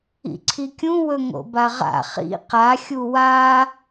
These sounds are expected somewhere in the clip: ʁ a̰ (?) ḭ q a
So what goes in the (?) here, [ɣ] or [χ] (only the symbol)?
χ